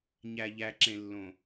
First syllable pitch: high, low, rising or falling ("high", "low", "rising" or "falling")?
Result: low